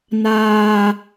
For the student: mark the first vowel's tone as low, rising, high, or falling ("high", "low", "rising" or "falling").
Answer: high